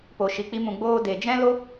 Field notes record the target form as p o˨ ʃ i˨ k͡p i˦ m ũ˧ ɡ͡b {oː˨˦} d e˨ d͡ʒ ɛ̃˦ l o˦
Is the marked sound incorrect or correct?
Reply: incorrect